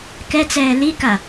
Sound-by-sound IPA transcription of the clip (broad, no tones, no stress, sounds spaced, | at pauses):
k ɛ t͡s ɛː l i k a